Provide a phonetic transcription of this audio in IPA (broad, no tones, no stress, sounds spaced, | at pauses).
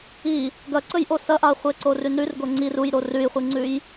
i | ɡ ɐ ǀ ɵ j ʔ o s ɐ ʔ a χʷ e ǀ o r ʉ n ɾ ʉ r ɡ o ŋ͡ǀ i r u j ɾ o r ʉ j χʷ ɨ ŋ͡ǀ ʉ j